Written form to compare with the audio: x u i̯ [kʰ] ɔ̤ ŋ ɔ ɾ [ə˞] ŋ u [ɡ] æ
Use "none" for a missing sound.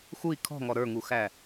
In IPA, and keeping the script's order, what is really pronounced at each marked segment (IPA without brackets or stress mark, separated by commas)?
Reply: kʰ, ə˞, x